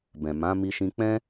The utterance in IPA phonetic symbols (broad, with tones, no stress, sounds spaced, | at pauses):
b ɛ̃˨ m ã˨˦ m i˧ ʃ ĩ˧ k͡p ɛ̃˦